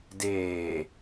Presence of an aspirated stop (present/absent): absent